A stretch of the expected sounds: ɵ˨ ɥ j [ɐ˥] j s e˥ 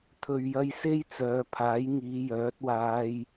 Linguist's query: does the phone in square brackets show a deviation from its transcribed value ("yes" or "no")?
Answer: yes